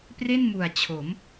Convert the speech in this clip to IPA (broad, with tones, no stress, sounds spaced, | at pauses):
p r e˥˩ n m u˨˩ a̯ t͡ɕʰ o˩˦ m